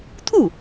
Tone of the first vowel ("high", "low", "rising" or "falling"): falling